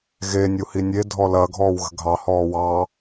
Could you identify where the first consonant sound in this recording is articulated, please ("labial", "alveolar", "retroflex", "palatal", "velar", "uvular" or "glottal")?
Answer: velar